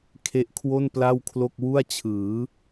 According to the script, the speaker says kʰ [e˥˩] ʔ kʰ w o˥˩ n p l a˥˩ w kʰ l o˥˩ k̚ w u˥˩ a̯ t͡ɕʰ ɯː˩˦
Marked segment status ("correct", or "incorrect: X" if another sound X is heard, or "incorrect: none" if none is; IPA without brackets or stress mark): incorrect: e˦˥